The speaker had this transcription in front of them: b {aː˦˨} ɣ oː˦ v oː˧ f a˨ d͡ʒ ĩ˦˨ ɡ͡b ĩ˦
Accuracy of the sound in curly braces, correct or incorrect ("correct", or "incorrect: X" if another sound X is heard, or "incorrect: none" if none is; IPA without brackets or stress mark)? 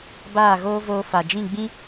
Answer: correct